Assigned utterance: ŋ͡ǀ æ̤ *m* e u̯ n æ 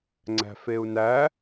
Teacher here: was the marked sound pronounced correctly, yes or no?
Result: no